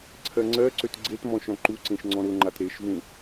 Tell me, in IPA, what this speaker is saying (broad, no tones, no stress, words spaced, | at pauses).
ǀʰɜŋ͡ǀɜǀøt ɡ͡ǀetmɔ̃ ʃɔ̃ǃuǀẽʃ ŋ͡ǀɔ̃ɾʊŋ͡ǃat ɾeʃvũ